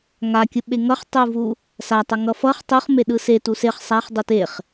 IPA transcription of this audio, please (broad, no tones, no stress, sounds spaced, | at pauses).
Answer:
ŋ a kʲ ɯ ɓ e ŋ ʌ χ tˤ u v u | s a tˤ ʌ ŋ ʌ f ʌ χ tˤ u χ m e ɗ ɯ s e t u s e χ sˤ a χ dˤ u t e χ